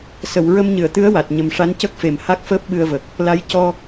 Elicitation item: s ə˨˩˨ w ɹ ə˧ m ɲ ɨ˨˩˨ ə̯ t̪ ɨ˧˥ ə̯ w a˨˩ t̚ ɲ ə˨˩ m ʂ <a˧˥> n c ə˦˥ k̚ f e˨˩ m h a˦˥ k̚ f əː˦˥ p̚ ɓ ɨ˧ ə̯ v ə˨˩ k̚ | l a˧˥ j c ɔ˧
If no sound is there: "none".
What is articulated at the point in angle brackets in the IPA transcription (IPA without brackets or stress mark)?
a˧˥